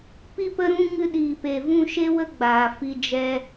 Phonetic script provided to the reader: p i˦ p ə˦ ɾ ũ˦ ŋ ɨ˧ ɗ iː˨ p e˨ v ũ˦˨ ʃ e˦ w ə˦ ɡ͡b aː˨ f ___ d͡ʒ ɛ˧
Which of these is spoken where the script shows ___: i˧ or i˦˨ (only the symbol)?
i˧